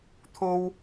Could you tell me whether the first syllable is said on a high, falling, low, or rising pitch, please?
high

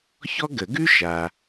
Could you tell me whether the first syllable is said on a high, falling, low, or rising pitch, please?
high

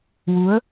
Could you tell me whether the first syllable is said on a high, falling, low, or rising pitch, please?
rising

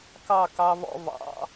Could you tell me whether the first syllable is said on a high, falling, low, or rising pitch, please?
falling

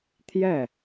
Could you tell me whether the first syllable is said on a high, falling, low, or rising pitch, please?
falling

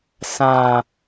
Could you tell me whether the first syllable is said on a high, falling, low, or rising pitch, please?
low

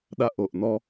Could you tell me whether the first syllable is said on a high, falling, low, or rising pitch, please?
high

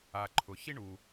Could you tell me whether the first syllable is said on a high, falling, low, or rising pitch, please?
low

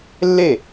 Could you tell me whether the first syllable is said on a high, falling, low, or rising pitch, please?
falling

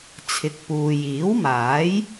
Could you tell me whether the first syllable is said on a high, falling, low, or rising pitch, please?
rising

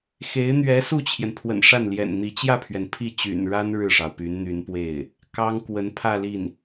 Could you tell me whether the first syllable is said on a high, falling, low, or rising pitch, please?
rising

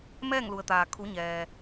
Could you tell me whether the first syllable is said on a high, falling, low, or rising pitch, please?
falling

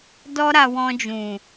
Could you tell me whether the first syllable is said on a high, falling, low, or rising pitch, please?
high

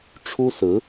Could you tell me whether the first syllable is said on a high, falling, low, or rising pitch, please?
high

